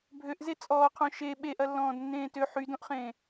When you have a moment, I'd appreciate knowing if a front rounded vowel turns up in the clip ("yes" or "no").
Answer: yes